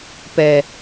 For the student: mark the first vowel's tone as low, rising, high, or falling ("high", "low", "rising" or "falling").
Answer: low